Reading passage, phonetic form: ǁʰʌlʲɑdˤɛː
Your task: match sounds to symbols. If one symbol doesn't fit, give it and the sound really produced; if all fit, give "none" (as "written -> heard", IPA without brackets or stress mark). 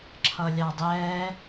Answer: none